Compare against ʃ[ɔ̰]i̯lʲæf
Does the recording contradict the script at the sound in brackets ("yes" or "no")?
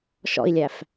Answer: no